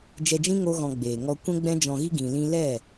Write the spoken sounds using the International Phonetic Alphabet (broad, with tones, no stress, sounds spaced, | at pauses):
d͡ʒ ɛ˧ d͡ʒ ĩ˦ ŋ o˦ ɣ ɔ̃˧ ɡ͡b eː˨ ŋ ɔ˧ kʷ ɛ̃˦ ɡ͡b ɛ̃˦ d͡ʒ ɔ̃˧ ɣ i˦ ɡ ĩ˧ l ĩ˦ l ɛ˦˨